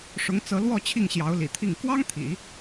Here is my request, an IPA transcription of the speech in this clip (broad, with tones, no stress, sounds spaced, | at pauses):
ʂ ʊ˧˥ ŋ t͡s ɤ˧˥ l w ɔ˥˧ t͡ɕʰ i˥˩ ŋ ɕ j ɑ˧˥ ʊ̯ l ḭ˨˩ t̪ʰ i˥˩ ŋ k w ɑ˥ ŋ t̪ʰ ḭ˨˩˦